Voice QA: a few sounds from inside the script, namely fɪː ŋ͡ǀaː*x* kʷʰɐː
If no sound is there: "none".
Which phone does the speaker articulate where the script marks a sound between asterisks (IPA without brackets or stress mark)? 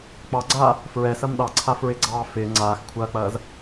x